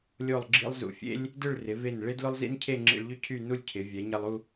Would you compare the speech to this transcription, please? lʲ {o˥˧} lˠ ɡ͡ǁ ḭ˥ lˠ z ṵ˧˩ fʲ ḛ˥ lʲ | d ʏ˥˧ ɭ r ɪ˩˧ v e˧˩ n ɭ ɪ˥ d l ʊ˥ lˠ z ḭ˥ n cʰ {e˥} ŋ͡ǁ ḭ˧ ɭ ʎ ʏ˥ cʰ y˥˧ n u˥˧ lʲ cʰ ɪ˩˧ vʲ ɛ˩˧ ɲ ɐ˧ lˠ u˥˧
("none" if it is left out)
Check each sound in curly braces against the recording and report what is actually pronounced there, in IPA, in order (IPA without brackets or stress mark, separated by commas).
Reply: o˥˧, e˥˧